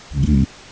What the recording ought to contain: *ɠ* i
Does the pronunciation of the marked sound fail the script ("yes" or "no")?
no